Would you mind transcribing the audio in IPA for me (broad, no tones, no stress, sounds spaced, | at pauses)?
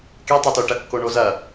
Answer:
k e tˤ a t o ʈ ɐ kː o ɳ o z ɐ